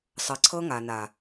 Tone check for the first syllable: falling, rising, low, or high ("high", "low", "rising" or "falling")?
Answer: low